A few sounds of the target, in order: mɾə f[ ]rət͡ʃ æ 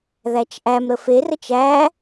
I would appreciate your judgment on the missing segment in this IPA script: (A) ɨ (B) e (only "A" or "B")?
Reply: B